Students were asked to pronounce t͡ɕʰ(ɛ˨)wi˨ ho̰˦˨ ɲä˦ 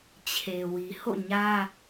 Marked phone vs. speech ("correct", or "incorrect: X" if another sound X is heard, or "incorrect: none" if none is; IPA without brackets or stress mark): incorrect: e˨